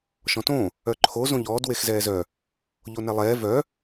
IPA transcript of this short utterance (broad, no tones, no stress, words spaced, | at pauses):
ʃɔ̃tõ | œǃʰo zõʎɔːd wexzɛːzœ | ʎonɛlˠɛː vœ